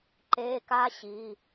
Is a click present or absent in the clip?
present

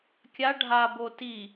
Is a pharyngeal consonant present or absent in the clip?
absent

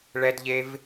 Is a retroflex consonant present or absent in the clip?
present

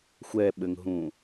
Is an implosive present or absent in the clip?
present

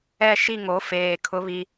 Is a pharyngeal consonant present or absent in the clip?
absent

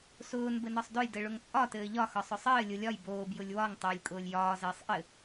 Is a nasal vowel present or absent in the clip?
absent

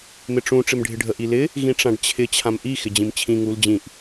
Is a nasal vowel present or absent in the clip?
present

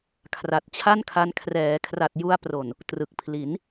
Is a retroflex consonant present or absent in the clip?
absent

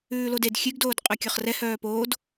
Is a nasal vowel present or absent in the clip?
absent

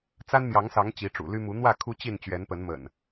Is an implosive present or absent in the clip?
absent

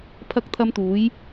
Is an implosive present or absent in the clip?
absent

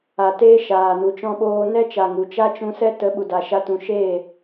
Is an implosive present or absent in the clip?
present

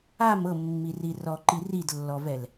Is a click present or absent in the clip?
present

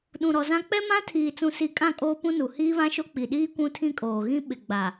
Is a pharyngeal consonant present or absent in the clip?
absent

